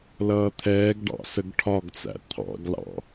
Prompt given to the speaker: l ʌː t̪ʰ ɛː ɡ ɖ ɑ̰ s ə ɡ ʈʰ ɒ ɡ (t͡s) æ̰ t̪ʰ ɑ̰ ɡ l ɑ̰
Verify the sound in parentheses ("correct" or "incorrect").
correct